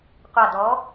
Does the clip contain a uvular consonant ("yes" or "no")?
yes